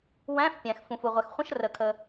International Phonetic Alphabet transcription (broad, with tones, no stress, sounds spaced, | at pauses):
w æ̃˧˥˧ f pʲ æ̃˩ x f ũ˩ f u˩ ʁʷ ɛ˩ x χʷ ə̃˧˥˧ ʃ r ə˩ kʰ ə˩